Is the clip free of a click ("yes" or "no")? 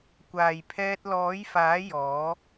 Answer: yes